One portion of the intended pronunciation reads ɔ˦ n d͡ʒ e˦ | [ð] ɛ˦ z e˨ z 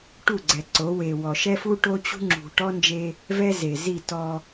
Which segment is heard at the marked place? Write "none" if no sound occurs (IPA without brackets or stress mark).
v